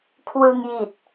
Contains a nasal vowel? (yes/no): no